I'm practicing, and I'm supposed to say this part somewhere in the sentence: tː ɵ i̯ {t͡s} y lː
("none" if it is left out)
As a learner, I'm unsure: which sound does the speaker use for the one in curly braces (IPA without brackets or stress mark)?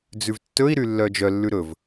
ɾ